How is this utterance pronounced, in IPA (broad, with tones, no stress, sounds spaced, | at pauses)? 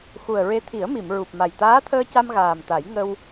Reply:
x u˨˩ ə̯ ɹ e˧˥ t̪ʰ i˨˩˦ ə̯ m i˨˩˨ m ɹ u˨˩ p̚ m a˨˩ j t̪ aː˧˥ t̪ʰ əː˧ c a˧ m ɣ aː˨˩ m t̪ a˨˩˦ j ŋ ə˧ w